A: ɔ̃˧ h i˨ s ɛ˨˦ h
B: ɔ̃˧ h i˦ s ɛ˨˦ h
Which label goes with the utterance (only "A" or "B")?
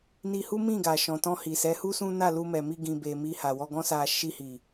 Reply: A